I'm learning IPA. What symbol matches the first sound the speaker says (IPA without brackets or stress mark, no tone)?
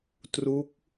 t